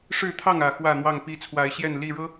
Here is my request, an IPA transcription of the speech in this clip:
ʂ ɻ̩˥˨ t̪ʰ ɑ˥˨ ŋ ä˨˩ x w ä˥˨ n̪ w ɑ˥˨ ŋ p i˥˨ t͡sʰ w a˨˦ ɪ̯ ɕ j ɛ˥˨ n l i˥˨ ɻ ɤ˦

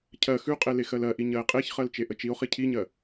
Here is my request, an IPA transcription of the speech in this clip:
cʰ ɜ x ʉ qʼ e l e x ɜ l ɜ ʔ i ɲ ɜ e̯ qʼ e ç χ ɜ l t͡ʃ e ʔ ə t͡ʃ i o̯ χ i cʰ i ɲ ɜ

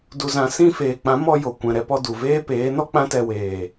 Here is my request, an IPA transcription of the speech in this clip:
d u˨ z ã˨ s ĩ˧ f eː˨ k͡p ã˨˦ m ɔ˧ j o˨ kʷ ɛ̃˨ ɾ ɛ˧ p ɔ˧ d u˨ v eː˦ p eː˨˦ n ɔ˦ k͡p ã˦ t ɛ˧ w eː˨

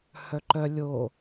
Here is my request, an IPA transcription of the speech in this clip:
h œ ǃ œ lʲ o

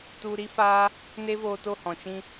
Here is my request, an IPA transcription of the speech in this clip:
t u˧ ɾ i˦ f aː˦ | n e˦ v oː˧ t o˦˨ h ɔ̃˨ t͡ʃ ĩ˦

